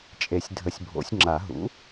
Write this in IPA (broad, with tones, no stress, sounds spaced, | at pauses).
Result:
t͡ʃʼ e˨˩˦ sʲ dʱ ə˨˩˦ sʲ bʱ o̰˨˩˦ sʲ ŋ͡ǁ a˨˩˦ ɦ ṵ˩˥